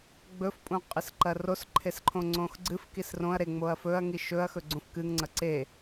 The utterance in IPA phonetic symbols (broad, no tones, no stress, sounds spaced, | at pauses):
ɡ͡b ɵ f pʼ ũ qʼ ɨ s ǃ ɐ r o s ǃʰ e s ǃʰ õ ŋ͡ǀ õ x ɡ͡ǀ ɨ f k i s r õ ɐ̯ ɾ e ŋ͡m o ɐ̯ f ɵ ɐ̯ ŋ i ʃ ɵ ɐ̯ x ɵ ɡ͡ǀ ũ f k ɨ ŋ ŋ͡ǀ ɐ ǀ e